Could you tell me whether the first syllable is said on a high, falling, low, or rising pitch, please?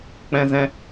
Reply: high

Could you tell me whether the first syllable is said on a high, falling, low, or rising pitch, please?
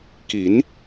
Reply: rising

